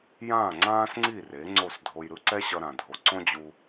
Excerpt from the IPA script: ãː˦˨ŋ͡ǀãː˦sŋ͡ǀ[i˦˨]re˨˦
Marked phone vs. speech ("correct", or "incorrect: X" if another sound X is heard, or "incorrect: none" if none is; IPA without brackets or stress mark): correct